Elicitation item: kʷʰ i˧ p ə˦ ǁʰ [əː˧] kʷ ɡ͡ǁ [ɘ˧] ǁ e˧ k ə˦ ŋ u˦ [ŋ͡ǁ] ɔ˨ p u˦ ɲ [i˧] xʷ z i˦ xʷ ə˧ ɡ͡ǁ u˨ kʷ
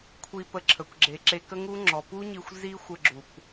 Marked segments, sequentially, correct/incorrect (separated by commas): incorrect, incorrect, correct, correct